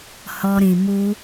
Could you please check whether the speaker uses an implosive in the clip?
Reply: no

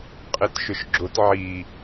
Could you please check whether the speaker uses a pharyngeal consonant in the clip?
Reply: yes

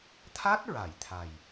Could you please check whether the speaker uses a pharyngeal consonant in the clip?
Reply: no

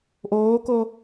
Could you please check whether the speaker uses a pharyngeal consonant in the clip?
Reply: no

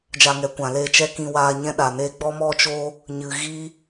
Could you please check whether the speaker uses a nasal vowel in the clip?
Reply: yes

